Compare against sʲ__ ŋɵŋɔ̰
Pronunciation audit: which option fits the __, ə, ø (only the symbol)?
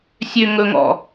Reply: ø